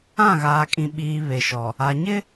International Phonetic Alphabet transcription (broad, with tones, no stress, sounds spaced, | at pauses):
ã˦˨ ɣ aː˨ kʼ ĩ˨ ɓ iː˨ β e˨ ʃ ɔ˨ | a˨ ɲ ɪ˦